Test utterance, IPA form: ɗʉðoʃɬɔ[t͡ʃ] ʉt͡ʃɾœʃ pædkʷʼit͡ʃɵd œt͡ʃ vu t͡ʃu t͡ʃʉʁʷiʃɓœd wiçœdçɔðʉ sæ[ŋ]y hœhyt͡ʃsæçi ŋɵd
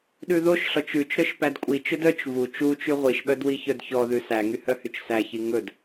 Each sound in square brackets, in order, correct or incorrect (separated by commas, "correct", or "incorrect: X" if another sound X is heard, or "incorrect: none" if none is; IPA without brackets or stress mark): correct, correct